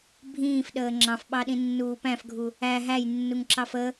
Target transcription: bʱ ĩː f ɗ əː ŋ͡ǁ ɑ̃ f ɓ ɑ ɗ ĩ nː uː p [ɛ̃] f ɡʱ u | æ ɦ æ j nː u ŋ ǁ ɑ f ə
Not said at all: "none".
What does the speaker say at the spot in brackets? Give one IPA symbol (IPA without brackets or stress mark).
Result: æ̃